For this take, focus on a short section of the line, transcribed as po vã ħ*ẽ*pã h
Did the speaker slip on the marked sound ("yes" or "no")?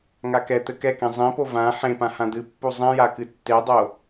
no